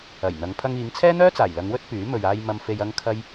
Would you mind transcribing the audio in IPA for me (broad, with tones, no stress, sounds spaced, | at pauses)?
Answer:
ɐ˨˩ j n̪ ɐ˨˧ ŋ pʰ ɐ˧ ŋ iː˨˧ ŋ t͡sʰ ɛː˥ n̪ œː˥ t͡s aː˨˩ j l ɐ˨˧ ŋ w ɵ˥ t̚ p yː˨˥ m ɵ˨ ɥ aː˧ j m ɐ˧ m f e˧ j ɐ˥ ŋ kʰ ɐ˥ j